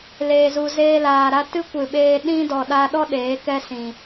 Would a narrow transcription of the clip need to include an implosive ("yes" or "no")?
yes